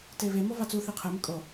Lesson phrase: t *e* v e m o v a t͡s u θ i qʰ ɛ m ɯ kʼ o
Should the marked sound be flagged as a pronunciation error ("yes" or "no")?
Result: no